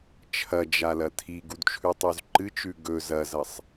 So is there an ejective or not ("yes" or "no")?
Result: no